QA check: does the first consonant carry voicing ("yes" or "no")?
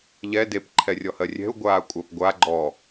yes